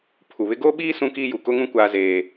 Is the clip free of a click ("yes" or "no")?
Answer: yes